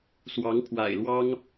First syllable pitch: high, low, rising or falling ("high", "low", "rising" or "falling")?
rising